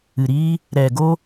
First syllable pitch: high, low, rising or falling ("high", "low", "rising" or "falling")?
low